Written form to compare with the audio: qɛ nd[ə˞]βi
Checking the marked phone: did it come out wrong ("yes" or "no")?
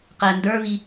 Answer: no